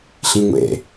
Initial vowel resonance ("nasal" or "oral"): nasal